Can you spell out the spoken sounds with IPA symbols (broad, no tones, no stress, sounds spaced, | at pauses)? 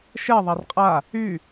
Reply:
ʃ ɛ ðˤ a r qʼ a | y